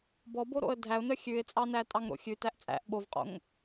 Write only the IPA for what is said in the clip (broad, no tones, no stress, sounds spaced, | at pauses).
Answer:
b ɔ b o ɾ o̰ ə̯ dʱ æ ʊ̯ n œ xʲ ʉ ɪ̯ t͡sʼ ɑ n æ tʼ ɑ ŋ ɾ o̰ xʲ ʉ t æ ʔ t͡sʼ æ̰ ʔ ɓ o v qʼ o̰ ŋ